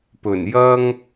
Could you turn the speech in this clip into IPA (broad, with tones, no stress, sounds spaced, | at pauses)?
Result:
p ɵ˨˩ n j ɐ˥ ŋ